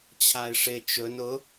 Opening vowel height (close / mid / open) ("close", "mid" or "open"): open